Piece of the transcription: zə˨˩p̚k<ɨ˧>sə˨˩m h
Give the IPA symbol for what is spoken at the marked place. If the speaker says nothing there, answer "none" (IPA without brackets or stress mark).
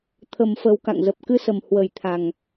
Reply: ɨ˧